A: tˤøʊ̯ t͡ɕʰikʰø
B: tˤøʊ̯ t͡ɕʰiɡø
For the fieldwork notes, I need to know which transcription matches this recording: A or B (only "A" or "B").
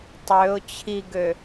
B